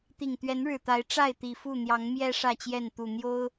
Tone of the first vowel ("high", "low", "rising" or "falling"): low